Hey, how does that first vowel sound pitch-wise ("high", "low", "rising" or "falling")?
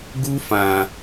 high